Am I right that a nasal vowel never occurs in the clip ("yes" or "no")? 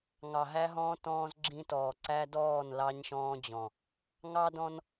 no